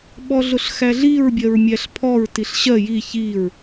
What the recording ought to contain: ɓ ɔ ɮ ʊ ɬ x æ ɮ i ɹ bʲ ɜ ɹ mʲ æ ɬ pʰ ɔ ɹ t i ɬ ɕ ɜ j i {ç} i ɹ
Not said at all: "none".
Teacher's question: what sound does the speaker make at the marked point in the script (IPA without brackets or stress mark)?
ç